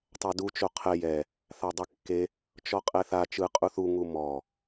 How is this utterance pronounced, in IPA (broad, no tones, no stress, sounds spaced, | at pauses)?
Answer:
tˤ a d u t͡ʃ o qʰ ɛ j ɛ | θ a dˤ i kː e | t͡ʃ ɔ qʼ ɛ θ a t͡ʃ ɯ qʼ u θ u ŋ u m ɔ